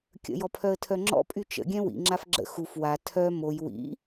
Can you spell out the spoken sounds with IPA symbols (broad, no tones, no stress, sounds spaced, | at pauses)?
kʲ ə̰ j ɔ pʰ œ ə̯ tʰ œ ŋ͡ǁ ɔ̰ pʼ y t͡ʃ ə̰ ɡʲ ɛ̃ w ḭ ŋ͡ǁ a f ɡ͡ǁ ə̰ x u f w a tʰ œ m o j w ḭ